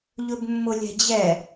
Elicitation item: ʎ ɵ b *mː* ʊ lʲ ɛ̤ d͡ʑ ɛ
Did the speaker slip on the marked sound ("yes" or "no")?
no